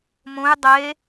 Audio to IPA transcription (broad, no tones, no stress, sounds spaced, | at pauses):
m õ j dˤ e